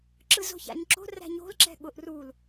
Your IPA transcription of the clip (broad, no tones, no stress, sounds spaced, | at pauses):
ǁ ɯ z o̤ ç a̰ ɲ ǁ o̤ r æ̤ ɲ o̤ l ǁ ɛ̤ ɠ ʊ ʔ r u l